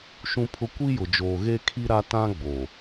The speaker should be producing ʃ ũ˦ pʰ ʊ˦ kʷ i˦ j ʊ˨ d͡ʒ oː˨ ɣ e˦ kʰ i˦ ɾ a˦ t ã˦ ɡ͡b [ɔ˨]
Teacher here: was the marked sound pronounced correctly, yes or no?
no